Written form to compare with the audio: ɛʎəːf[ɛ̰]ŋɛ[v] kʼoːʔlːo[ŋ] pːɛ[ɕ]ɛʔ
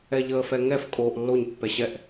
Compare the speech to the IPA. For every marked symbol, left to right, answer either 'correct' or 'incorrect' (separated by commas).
incorrect, incorrect, incorrect, correct